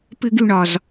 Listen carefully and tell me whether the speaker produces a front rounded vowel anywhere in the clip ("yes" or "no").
yes